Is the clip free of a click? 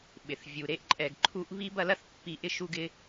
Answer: no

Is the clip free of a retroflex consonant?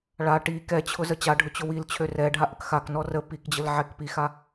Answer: no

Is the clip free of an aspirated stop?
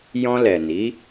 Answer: yes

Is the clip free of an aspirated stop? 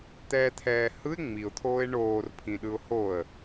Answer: no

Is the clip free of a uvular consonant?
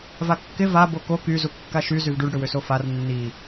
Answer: yes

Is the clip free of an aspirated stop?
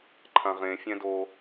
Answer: no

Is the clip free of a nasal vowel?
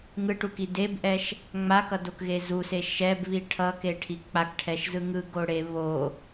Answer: yes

